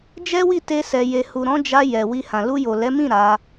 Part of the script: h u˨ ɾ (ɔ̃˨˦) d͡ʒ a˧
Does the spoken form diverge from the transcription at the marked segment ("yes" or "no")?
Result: no